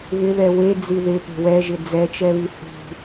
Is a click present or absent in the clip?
absent